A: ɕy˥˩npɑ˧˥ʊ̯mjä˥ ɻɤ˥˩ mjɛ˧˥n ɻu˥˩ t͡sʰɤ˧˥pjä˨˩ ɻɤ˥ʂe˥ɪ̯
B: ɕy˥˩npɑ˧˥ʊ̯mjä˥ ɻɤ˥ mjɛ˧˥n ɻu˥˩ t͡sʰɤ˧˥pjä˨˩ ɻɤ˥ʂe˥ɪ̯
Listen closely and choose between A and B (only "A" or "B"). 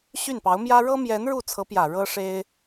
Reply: B